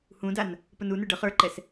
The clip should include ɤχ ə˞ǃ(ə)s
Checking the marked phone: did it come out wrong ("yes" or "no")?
yes